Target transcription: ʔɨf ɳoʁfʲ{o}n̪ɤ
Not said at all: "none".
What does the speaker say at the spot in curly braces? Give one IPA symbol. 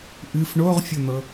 o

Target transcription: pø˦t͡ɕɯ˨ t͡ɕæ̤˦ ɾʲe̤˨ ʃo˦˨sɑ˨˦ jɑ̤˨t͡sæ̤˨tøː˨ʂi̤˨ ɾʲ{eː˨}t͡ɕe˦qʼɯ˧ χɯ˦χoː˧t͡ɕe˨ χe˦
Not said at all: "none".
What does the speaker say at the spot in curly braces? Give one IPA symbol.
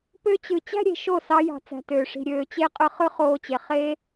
øː˨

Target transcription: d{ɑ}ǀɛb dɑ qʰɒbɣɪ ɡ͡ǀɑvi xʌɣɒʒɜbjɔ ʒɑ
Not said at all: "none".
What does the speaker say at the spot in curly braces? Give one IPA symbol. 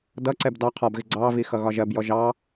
ʌ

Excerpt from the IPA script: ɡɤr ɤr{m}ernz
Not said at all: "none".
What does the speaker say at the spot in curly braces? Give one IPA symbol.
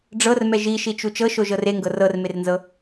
m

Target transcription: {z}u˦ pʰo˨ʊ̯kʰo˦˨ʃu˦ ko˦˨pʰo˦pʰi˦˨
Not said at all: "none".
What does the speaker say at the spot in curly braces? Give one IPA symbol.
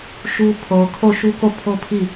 ʃ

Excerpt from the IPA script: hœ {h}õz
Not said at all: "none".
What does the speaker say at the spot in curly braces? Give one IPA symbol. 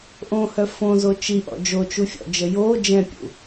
f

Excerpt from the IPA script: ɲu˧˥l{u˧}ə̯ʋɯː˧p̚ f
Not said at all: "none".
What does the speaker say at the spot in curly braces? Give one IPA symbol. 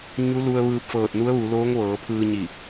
u˧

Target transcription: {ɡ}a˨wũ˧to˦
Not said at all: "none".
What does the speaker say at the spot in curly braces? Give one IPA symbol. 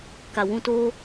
k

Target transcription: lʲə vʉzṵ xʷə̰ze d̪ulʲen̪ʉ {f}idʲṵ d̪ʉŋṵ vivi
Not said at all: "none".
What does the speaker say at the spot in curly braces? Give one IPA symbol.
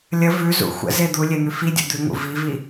f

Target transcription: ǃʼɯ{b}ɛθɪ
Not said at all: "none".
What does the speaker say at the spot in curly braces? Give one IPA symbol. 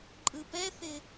p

